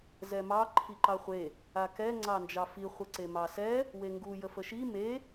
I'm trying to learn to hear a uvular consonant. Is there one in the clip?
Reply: yes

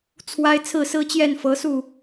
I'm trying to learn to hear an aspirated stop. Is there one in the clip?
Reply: yes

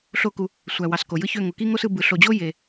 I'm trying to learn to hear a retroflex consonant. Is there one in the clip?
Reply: no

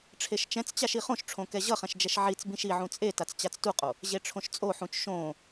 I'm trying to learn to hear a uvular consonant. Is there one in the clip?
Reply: yes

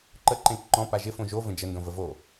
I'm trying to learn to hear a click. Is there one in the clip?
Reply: yes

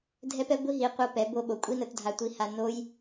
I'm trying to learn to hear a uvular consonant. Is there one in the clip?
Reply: yes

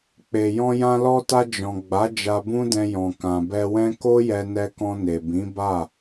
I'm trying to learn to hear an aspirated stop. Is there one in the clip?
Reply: no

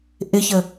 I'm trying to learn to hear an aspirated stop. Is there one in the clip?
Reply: no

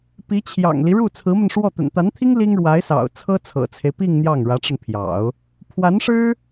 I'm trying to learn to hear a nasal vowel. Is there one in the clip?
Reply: no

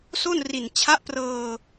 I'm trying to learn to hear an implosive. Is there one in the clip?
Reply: no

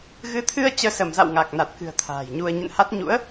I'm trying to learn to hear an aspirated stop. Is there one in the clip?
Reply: yes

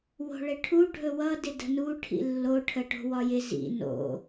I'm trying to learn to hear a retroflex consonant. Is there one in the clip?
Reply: yes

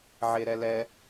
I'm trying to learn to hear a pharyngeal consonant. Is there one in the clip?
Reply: yes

